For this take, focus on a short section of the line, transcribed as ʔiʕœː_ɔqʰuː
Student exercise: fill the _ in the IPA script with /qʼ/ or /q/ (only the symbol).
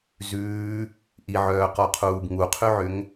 q